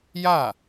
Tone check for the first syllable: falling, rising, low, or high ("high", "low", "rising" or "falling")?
falling